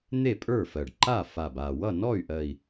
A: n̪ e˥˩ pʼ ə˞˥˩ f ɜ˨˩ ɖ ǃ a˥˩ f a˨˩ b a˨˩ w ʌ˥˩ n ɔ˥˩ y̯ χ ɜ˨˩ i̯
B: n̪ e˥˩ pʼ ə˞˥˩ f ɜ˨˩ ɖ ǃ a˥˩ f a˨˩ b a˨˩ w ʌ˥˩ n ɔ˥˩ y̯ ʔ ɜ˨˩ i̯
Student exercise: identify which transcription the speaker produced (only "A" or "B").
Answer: B